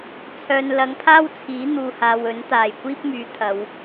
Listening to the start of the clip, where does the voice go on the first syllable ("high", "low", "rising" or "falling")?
low